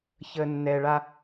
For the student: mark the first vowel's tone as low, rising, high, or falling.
low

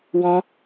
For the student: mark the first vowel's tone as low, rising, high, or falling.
high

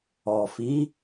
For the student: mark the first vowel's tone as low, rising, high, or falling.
low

